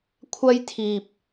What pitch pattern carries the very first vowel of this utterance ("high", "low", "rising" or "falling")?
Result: high